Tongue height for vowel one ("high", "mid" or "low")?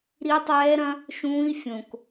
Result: high